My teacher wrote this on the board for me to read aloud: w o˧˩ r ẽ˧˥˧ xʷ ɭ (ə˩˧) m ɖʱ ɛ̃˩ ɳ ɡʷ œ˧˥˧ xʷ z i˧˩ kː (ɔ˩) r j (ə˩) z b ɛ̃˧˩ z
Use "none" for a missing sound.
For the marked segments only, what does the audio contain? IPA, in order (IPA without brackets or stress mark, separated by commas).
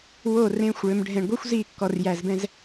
ø˩˧, ɔ˩, æ˩